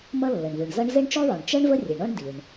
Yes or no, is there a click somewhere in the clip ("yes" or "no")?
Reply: no